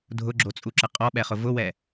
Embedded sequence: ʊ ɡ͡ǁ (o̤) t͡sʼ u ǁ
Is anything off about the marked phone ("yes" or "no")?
yes